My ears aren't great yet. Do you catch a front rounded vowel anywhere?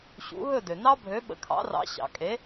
yes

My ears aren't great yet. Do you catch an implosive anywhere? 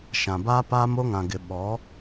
yes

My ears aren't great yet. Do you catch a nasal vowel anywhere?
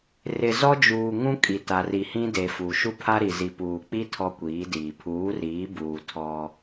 yes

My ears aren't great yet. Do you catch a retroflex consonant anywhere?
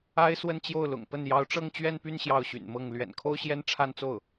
yes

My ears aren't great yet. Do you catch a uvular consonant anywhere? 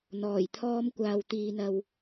no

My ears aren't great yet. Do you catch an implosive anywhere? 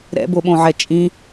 yes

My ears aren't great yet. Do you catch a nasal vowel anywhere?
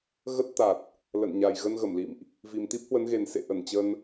no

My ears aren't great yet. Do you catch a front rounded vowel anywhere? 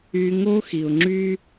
yes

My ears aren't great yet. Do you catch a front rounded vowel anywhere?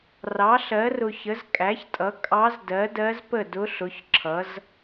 no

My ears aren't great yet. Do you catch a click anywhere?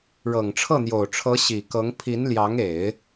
no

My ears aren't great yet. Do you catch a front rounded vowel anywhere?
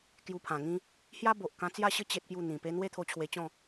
no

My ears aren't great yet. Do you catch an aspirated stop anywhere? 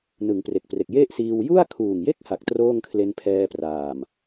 yes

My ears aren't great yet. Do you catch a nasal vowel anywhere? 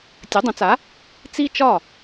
yes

